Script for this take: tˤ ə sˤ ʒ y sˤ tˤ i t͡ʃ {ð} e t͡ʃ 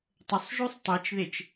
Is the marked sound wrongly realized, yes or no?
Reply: no